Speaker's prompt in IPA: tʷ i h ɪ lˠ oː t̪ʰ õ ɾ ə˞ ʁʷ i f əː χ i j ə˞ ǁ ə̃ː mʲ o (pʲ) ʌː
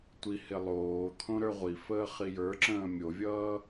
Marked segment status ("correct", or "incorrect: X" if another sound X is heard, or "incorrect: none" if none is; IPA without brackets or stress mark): incorrect: vʲ